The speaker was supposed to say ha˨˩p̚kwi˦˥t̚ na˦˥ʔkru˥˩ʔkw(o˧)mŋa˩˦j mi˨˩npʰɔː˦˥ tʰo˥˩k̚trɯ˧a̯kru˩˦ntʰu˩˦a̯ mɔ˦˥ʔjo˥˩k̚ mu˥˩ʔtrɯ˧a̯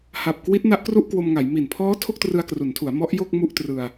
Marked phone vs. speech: correct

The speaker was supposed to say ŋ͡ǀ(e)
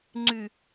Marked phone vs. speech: incorrect: y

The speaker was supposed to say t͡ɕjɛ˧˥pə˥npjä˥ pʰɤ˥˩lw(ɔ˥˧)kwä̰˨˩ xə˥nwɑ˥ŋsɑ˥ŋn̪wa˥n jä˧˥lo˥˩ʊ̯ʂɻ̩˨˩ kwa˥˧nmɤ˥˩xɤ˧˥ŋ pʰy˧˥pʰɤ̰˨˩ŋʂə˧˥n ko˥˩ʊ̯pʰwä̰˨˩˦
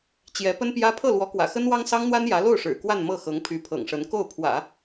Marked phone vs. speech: incorrect: ɔ˧˥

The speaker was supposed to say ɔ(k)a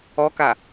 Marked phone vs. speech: correct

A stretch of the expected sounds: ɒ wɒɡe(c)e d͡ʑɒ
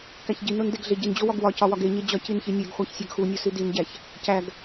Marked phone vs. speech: incorrect: ɲ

